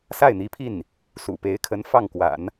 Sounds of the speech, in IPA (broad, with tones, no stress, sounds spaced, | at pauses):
s a˥˩ ɪ̯ n̪ i˧˥ pʰ i˥˩ n | s ṵ˨˩ p e˧˥ ɪ̯ kʰ ə˧˥ n f ɑ˥˩ ŋ k w a̰˨˩˦ n